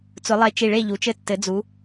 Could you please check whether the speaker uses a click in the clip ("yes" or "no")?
no